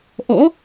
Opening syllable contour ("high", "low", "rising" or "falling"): rising